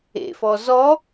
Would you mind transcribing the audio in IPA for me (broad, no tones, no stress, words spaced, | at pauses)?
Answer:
ḛfɔ zɔ